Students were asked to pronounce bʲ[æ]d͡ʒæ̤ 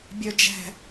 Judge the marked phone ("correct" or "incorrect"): incorrect